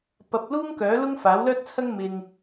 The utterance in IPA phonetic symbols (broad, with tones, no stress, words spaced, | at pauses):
pɐ˧p̚ luː˥ŋkœː˨˥lʊ˥ŋ faː˨˥wlœː˥t̚t͡sʰɐ˥ŋ mɪ˨ŋ